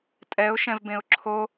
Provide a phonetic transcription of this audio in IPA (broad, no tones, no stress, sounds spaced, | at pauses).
tʼ ɛ ʊ̯ ʃ ɛ̃ v b ẽ ʊ̯ ǁʰ o